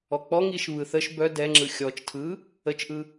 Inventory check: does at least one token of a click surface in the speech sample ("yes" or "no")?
yes